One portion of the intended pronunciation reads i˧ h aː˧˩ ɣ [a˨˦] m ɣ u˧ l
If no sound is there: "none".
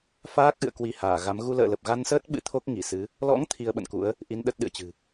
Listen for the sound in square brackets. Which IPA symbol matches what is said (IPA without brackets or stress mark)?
a˨˦